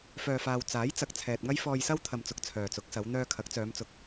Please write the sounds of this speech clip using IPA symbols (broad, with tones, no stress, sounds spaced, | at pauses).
f œː˨ f aː˨ w t͡s aː˨˥ j t͡s ɐ˨ k̚ t͡sʰ ɛː˨ t̚ ŋ ɐ˥ j f ɔː˧ j s ɐ˥ w t̪ʰ ɐ˨ m t͡s ʊ˨ k̚ t͡sʰ œː˨ t͡s ʊ˨˥ k̚ s ɐ˨˧ w n̪ œː˧ kʰ ɐ˨˥ k̚ t͡s œː˨˧ m t͡s ʊ˨ k̚